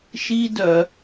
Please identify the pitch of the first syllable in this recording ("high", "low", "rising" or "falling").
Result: high